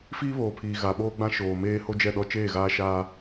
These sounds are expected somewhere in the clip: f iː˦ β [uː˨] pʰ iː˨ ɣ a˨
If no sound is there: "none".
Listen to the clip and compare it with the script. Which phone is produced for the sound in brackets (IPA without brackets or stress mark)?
oː˨